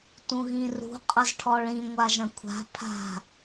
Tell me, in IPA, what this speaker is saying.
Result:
t ũ ɣ ĩ r ṳ qʼ ʌ z ʈʰ ɔ ɭ ĩ ŋʷ a ʒ ɐ̃ kʷʰ a̤ pʰ a̤

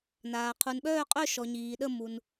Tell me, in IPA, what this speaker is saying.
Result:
n aː˨ qʰ u˨ n ɓ œː˥˧ qʼ œ˥˧ ʃ ɔ˨ ɲ iː˨ ɗ ə˥˧ m u˨ n

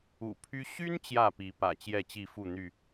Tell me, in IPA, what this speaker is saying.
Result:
ṵ˨˩ pʰ y˦ ɕ y˦ n t͡ɕ j ä˥˨ p i˨˦ p ä̰˨˩ t͡ɕ j ɛ˥˨ t͡ɕ i˥˨ f u˥˨ n̪ y˥˨

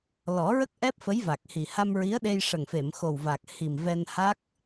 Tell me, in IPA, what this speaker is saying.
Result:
l ɔ˨˩˦ ɹ ə˦˥ k̚ ʔ ɛ˦˥ p̚ f ə˧˥ j v a˨˩ k̚ h i˨˩ h a˧ m ɹ i˧˥ ə̯ ɗ e˧ j ʂ ə˨˩ ŋ f e˨˩˨ m x o˨˩ w v a˨˩ k̚ h i˨˩ m v ɛ˧ n h a˦˥ k̚

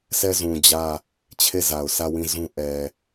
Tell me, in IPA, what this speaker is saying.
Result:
s ɛ˦˨ z ũ˨ d͡ʑ ä˦˨ | t͡ɕʰ e˦˨ z a˨ ʊ̯ s ä˦˨ w ĩ˦˨ z ũ˦ ʔ ɛ˨

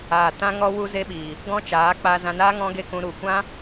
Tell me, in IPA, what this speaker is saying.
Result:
aː˨ t ã˦ ŋ ɔ˦ w u˦ z e˦ ɓ iː˨ | ɡ ɔ̃˦ t͡ʃ aː˨˦ k͡p aː˧ z ã˧ n aː˦ ŋ ɔ̃˦ ɡ e˦ k ũ˧ ɾ u˨ kʷ ã˦

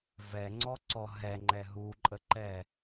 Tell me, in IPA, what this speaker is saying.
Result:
v ɛ ŋ͡ǀ ɔ ǀ ɔ ɦ ɛ ŋ͡ǃ ɛ ɦ u ǃʼ ə ǃ ɛ

